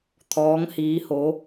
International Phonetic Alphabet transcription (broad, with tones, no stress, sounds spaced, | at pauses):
t̪ʰ ɔː˧˥ ŋ h iː˧˥ h o˧˥